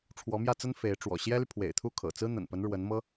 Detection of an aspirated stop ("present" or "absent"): present